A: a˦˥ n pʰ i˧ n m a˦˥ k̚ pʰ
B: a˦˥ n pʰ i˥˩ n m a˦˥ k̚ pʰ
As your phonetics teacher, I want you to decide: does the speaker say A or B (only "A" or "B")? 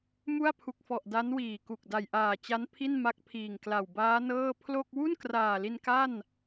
B